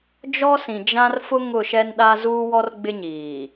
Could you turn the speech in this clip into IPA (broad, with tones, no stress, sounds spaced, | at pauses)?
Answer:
d͡ʒ ɔ˦ s ĩ˨ d͡ʒ ã˦ r f ʊ˦ ŋ ʊ˦˨ ʃ ɛ˦ n ɗ a˦ z uː˦ w ɔ˦ r ɡ͡b ɪ˦ ɲ iː˨